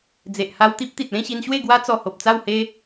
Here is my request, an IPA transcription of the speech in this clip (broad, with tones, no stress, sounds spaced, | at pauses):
d͡z e˨ ʔ h a˧ w t̪ i˦ p̚ t̪ i˨ t̚ l ẽ˥˧ ɕ i˧ n ɕ w e˥˧ ɡ w a˦ t͡s ɔ˧ h o˨ p̚ t͡s a˥˧ w h e˦